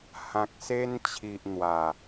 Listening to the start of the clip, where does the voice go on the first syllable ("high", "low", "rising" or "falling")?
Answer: low